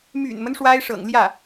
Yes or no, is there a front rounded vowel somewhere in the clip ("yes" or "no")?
yes